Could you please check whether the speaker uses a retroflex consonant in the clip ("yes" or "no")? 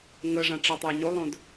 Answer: yes